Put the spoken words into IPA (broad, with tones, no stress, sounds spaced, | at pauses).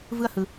v ɯ˦ ɐ̯ h ɯ˧